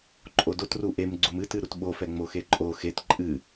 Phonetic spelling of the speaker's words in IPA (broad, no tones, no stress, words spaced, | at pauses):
ǃʼodot ruʔem ɡ͡ǀumɨt ɨɾutɓo fɛŋ͡moxeǃʼo xet ǃʼɨ